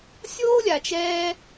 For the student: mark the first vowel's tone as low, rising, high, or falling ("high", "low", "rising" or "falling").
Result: high